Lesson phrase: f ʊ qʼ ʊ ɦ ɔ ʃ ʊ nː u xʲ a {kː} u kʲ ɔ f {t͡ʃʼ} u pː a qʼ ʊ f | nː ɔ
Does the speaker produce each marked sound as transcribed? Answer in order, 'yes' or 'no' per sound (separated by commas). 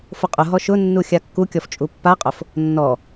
yes, yes